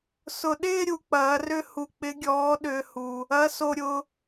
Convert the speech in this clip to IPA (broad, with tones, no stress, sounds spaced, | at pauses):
s ʊ˨ ɗ ɪː˥˧ ɾʲ u˨˦ k͡p ɐː˨˦ r ʏ˥˧ h u˨ k͡p ɪ˨˦ ɡʲ ɔː˨˦ ɗ ʏː˨ h u˨ | ɐ˨˦ s o˨ ɾʲ ʊ˨